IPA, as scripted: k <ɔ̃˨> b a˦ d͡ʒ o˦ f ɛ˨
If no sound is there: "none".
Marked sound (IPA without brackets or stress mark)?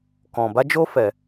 ɔ̃˨